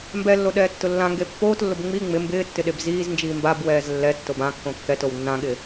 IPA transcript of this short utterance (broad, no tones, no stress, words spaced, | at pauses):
mbɛlːo ɗɛːtːʊlːãŋɡe pːoːtlːʊb ŋ͡mi ŋ͡mɪ mbɪːtːɪ ɗebziːznd͡ʒiː mbabwɛːz lːɛtːob ãkːõ kːɛtow nːãɠɪː